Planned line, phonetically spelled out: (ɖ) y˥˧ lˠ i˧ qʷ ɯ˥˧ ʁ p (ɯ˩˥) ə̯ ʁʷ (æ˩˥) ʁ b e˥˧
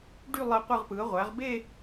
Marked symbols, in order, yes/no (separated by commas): yes, yes, yes